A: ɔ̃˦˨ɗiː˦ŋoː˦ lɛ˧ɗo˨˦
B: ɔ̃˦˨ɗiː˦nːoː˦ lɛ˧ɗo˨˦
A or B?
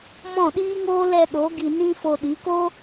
A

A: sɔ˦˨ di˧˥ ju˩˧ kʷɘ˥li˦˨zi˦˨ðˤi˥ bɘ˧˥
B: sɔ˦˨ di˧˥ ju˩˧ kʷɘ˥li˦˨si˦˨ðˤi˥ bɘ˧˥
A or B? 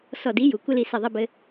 B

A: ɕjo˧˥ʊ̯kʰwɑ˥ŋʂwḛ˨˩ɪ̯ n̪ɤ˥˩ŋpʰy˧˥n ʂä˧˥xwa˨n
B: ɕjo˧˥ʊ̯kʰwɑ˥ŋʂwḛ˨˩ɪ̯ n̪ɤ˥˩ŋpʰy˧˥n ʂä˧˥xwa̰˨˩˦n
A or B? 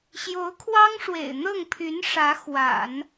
B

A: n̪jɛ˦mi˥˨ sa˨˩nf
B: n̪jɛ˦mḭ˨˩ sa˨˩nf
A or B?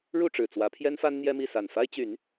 A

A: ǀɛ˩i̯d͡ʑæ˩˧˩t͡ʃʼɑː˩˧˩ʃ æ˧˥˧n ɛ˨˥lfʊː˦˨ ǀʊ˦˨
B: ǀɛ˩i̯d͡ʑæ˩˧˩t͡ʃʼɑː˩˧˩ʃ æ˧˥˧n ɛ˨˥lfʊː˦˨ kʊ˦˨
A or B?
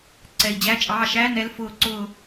A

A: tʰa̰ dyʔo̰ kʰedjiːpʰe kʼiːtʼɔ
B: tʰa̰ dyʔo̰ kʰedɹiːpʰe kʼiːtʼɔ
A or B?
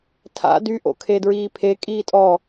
B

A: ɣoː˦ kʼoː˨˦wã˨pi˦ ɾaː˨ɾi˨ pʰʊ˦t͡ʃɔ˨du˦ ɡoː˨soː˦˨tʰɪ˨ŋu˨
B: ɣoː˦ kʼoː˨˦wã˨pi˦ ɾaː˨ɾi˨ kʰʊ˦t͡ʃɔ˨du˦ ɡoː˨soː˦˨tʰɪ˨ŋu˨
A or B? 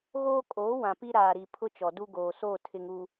A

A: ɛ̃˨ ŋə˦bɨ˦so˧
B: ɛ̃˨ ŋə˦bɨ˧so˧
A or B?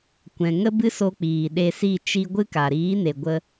A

